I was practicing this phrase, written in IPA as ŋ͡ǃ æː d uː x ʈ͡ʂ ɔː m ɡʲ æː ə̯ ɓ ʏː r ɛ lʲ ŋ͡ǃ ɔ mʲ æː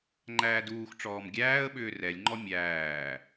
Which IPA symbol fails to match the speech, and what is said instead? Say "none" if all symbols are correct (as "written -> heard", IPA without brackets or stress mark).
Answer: none